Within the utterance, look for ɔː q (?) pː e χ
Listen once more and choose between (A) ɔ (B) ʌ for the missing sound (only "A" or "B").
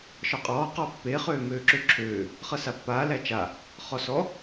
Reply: A